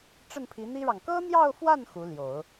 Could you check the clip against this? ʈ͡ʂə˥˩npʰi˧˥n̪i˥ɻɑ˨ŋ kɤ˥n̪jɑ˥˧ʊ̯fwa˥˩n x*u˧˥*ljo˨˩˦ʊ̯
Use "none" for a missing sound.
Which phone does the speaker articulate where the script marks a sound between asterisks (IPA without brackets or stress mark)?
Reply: u˧˥